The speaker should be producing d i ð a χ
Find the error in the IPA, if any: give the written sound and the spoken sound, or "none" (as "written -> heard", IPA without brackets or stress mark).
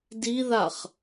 none